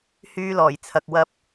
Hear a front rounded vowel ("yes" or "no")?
yes